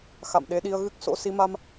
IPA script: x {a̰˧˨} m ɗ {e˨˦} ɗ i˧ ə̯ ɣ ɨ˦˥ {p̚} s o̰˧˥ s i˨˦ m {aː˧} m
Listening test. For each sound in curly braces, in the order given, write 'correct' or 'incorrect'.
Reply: correct, correct, incorrect: k̚, incorrect: a˧

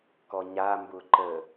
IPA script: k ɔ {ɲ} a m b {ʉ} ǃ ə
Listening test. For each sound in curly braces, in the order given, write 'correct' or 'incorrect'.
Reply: correct, incorrect: ʊ

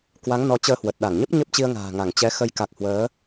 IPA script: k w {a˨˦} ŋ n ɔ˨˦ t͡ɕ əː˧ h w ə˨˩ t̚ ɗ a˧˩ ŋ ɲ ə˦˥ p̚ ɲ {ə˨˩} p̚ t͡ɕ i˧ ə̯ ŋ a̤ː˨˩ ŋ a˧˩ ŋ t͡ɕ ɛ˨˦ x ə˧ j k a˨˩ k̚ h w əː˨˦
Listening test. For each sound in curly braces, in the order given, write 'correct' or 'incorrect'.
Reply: correct, incorrect: ə˦˥

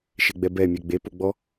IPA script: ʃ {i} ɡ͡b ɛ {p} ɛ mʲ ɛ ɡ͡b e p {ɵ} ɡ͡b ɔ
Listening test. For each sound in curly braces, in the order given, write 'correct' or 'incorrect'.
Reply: incorrect: e, incorrect: b, incorrect: o

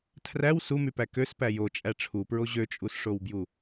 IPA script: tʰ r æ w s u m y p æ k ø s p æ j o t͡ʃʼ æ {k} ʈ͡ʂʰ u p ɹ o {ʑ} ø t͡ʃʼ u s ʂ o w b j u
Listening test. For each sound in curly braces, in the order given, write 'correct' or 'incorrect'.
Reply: incorrect: none, correct

